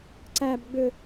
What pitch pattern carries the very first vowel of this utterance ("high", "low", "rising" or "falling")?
high